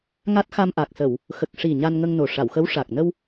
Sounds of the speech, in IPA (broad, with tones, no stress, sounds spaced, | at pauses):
ŋ a˦˥ t̚ x a˧ m ʔ a˨˩ k̚ s ə˨˩˨ w | x ə˨˩ k̚ ʂ i˨˩ ɲ a˧ n ŋ ə˧ ŋ n o˨˩ ʂ a˨˩˨ w x ə˧˥ w ʂ a˨˩ k̚ n ə˧ w